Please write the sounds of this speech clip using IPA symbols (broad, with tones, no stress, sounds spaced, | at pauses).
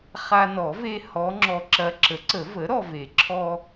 χ a˧ n ɔ˨˩˦ v e˧ h ɔ˧˥ ŋ͡ǁ ɔ˧ ǁ ɐ˧˥ ǁ ə˩˥ ǀ ə˨˩˦ v ə˩˥ ɾ ɔ˧ v e˨˩˦ ǁʰ ɔ˧